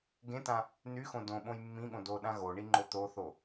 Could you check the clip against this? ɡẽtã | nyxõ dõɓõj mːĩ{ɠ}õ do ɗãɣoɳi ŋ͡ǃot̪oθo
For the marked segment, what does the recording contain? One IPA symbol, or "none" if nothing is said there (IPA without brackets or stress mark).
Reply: ɠ